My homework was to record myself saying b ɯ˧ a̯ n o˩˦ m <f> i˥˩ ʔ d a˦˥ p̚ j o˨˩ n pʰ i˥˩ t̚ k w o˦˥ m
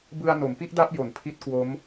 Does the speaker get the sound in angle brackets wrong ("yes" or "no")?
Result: yes